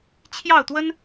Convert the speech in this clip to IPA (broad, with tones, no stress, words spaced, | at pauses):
t͡ɕʰjɑ˥˩ʊ̯t̪wə˥n